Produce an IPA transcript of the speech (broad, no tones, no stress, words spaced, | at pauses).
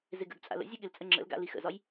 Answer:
zɪɡə̰ɡ t͡sʼa̰lə̰ zʲɯɠɪlt͡sʼə ŋ͡ǁə̰lɡa̰ lixə̰zɒj